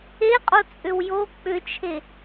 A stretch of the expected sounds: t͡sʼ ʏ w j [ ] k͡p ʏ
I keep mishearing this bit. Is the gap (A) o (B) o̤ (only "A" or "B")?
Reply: A